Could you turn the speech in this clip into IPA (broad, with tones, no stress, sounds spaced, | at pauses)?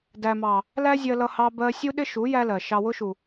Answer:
d æ˨ m ɑ˨ | l æ˦ zʲ ɜ˧ l ʌ˧ h ɑ˧ b ɜ˧ sʲ u˦ ɗ ɪ˦ ʃ u˨˦ j æ˦ l ɜ˨ ʃ ɑ˨ w ʊ˧ ʃ u˨